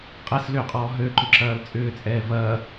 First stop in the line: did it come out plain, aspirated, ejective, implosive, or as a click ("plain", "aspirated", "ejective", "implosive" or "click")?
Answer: ejective